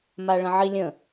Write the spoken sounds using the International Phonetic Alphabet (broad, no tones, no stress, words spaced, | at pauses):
maɭə̃ʕilʲə̃